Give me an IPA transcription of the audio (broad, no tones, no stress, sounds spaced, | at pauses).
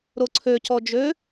ɾ o ǀʰ ø c ɔ d͡ʒ ø